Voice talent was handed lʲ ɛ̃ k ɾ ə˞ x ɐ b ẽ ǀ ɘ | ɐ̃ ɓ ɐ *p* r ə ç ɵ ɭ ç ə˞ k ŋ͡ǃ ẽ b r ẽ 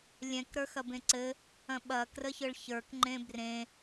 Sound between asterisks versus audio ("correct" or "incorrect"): incorrect